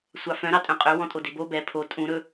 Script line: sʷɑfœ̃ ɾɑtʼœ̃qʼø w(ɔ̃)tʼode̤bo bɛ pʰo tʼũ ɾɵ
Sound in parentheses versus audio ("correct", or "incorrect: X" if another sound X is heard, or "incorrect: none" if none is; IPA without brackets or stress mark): correct